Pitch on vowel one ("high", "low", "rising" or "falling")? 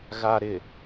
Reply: low